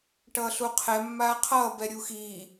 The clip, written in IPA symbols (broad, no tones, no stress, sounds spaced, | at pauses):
ʈ ʌː ɬ u qʰ ɛ mː aː qʰ ʌː b ɛ ɾʲ u x iː